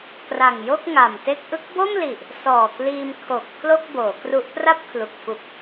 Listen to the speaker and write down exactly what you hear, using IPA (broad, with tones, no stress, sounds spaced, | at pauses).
k r a˨˩ ŋ j o˥˩ k̚ ŋ a˨˩ m t e˥˩ k̚ ʔ ɯ˦˥ k̚ b o˥˩ m l i˨˩ ʔ | s ɔː˨˩ k l iː˧ m kʰ o˨˩ k̚ pʰ l o˥˩ k̚ b oː˩˦ k r u˦˥ ʔ p r a˥˩ p̚ kʰ l u˨˩ k̚ f u˨˩ k̚